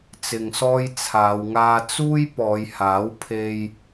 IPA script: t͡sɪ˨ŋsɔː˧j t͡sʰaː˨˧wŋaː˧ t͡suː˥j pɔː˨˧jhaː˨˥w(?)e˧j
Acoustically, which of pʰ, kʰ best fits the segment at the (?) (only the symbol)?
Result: pʰ